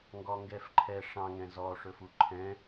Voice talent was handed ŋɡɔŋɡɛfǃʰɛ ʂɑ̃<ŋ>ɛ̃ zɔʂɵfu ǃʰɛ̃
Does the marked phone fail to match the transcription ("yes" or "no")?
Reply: no